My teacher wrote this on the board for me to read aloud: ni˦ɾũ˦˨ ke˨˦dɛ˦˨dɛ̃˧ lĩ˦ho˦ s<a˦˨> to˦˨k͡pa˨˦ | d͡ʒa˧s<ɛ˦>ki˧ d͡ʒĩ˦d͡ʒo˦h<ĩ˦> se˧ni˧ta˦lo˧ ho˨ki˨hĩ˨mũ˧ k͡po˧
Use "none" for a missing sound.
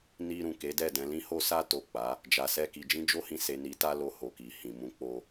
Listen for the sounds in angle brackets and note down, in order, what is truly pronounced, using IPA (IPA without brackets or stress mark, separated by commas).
a˦, ɛ˦, ĩ˧